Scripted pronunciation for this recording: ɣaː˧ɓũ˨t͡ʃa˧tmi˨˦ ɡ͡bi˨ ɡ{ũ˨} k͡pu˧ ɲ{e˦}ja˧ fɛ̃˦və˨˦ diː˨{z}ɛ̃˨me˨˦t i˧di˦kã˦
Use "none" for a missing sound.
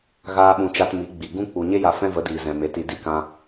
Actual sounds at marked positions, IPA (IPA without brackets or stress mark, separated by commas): ũ˦, e˦, z